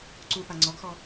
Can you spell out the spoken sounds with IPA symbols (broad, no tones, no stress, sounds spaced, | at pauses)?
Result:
ǀ u p a ŋ͡ǀ ɔ ɡ x ɔ